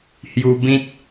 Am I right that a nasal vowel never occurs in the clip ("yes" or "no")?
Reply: no